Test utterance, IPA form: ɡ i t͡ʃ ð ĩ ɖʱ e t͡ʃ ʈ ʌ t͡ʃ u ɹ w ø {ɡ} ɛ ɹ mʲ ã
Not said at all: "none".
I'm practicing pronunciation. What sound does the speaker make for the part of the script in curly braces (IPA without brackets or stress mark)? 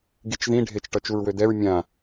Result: d